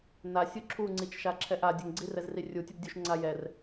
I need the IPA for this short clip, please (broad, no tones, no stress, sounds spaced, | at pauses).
n a sʲ u ǁʰ u ŋ͡ǀ i t͡ʃ ʃ a ǁʰ ɛ ʔ a dʲ ə ŋ ɡ͡ǀ i r ɛ z r i rʲ u tʲ ə b dʲ u ʃ ŋ͡ǀ a j ɛ r